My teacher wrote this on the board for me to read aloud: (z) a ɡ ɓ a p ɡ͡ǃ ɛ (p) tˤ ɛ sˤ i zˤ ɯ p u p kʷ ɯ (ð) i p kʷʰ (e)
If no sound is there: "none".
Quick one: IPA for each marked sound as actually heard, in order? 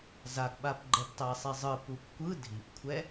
z, p, dʱ, ɛ

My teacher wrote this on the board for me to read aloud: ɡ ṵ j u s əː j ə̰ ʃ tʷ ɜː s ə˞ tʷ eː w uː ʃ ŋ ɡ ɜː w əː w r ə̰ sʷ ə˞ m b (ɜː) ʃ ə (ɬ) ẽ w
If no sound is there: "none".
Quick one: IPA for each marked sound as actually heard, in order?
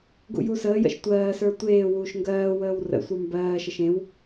ɜː, ʃ

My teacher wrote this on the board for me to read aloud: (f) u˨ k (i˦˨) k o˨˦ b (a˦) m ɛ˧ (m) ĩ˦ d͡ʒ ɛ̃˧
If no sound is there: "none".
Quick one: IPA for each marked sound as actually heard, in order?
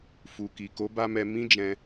f, i˨, a˦, m

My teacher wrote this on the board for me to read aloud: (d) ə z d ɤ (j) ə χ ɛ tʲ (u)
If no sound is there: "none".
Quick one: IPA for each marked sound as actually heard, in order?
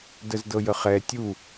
d, j, u

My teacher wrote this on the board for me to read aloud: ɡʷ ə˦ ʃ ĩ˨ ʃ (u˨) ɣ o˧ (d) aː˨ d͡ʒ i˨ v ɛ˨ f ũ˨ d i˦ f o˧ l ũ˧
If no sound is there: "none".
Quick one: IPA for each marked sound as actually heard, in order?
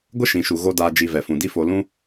u˨, d

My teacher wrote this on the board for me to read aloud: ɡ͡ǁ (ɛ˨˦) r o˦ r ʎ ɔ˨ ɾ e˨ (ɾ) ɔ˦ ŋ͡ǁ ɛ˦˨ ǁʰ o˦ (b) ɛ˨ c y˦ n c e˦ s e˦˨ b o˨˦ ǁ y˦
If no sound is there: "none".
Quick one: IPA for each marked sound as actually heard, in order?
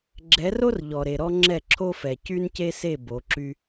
ɛ˨˦, ɾ, f

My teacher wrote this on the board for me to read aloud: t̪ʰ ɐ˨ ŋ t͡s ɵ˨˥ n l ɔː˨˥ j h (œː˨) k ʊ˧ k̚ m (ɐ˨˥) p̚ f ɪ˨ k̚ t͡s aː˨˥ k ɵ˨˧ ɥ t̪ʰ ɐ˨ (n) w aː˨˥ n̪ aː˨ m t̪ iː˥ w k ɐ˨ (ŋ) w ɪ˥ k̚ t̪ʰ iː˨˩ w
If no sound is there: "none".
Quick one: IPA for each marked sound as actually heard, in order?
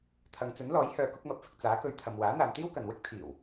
œː˨, ɐ˨, m, n

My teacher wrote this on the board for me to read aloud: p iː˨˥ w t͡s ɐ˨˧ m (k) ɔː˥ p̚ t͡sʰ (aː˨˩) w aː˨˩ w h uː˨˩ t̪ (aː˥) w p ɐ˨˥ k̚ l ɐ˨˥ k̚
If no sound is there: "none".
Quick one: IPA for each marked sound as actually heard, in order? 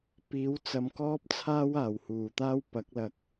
k, aː˥, aː˥

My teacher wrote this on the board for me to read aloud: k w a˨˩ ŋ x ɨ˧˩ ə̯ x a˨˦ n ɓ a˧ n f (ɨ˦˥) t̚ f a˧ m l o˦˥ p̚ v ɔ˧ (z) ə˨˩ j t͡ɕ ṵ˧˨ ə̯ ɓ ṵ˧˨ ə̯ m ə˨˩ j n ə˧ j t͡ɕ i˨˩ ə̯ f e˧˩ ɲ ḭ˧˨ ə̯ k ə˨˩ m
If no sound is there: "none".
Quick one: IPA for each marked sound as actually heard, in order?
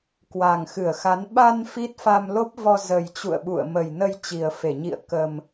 i˦˥, z

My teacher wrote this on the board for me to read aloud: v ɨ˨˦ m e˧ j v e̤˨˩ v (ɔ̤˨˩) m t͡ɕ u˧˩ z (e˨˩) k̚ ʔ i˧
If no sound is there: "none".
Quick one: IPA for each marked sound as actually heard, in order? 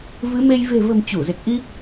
ə̤˨˩, e˨˩

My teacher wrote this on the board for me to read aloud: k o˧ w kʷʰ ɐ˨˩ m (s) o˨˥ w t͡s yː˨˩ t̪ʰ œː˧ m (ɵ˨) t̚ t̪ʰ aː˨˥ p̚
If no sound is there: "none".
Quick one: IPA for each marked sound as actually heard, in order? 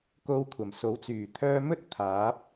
s, ɵ˥

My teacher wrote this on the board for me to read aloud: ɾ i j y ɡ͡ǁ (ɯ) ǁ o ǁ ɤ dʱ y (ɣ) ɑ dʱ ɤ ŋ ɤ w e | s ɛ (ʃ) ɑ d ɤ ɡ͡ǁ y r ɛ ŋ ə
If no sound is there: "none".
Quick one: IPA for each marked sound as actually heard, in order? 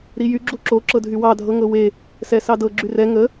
u, w, s

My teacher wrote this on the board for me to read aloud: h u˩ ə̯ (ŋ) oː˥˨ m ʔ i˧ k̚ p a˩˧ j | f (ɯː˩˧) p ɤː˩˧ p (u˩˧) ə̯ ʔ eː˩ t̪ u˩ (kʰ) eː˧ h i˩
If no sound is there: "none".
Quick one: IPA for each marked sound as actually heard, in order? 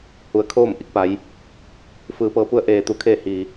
kʰ, ɯː˩˧, u˧, kʰ

